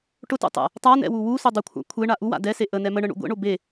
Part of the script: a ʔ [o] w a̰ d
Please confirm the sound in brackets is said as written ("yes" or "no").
no